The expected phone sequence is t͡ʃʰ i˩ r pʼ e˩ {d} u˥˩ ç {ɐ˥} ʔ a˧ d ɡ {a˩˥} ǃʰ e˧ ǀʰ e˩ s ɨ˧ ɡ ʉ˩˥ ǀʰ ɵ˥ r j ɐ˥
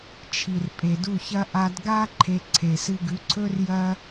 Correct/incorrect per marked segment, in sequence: correct, correct, incorrect

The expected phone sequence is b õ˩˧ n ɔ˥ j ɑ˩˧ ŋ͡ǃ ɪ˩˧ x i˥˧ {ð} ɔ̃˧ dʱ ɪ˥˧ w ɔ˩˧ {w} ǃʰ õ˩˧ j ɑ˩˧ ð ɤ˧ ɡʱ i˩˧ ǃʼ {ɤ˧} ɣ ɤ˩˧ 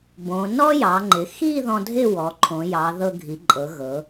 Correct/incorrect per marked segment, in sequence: correct, incorrect, incorrect

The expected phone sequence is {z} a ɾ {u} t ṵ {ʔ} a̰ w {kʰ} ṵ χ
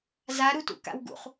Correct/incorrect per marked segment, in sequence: correct, correct, incorrect, incorrect

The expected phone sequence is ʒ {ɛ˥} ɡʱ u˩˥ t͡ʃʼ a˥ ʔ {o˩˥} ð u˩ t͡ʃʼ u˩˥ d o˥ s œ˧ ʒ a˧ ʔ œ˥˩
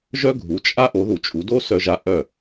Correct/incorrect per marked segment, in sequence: incorrect, correct

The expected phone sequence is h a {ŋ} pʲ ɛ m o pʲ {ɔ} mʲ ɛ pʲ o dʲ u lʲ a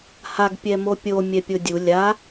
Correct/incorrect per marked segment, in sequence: incorrect, incorrect

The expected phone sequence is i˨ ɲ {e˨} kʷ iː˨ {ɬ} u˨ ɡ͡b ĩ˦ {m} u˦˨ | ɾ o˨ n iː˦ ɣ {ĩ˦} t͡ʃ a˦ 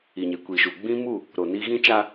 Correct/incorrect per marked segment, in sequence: correct, incorrect, correct, correct

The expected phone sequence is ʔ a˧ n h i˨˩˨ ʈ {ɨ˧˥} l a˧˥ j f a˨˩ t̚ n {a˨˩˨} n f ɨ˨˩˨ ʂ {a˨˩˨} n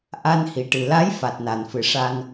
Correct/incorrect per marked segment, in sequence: incorrect, correct, incorrect

